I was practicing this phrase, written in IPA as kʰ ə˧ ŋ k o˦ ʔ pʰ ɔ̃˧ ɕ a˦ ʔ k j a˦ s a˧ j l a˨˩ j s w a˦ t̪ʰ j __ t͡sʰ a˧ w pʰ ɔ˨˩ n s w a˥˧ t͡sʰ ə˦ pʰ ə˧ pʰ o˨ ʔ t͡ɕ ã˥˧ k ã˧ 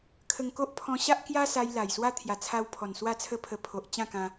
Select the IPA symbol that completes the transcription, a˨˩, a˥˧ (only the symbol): a˨˩